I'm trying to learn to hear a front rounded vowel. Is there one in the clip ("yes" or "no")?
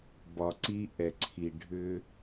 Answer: yes